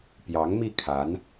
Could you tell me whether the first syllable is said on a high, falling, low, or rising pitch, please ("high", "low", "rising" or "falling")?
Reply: rising